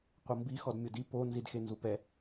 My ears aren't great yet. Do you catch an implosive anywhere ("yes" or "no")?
no